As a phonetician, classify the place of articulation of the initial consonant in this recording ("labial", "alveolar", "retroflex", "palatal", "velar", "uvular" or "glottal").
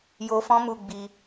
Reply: palatal